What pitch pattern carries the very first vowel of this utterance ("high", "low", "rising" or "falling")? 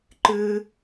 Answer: high